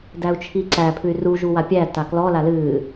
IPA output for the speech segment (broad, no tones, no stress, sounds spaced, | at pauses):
d æ u̯ t͡ʃʰ i ǀ æ pʰ ɨ y̯ r u ʒ u w a pʲ æ t a k l ɔ l a l ɨː